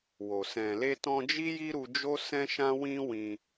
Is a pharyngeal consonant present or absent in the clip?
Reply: absent